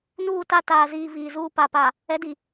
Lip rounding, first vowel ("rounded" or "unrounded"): rounded